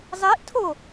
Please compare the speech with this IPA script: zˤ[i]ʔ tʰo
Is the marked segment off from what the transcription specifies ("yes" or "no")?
no